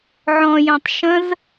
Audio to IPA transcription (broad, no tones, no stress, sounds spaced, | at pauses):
ʕ ɔ̃ j œ̃ tˤ ʃ ə̃ z